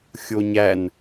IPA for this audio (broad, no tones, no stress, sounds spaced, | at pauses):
xʲ o ɲ æ n